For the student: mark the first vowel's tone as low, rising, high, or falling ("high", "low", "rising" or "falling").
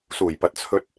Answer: low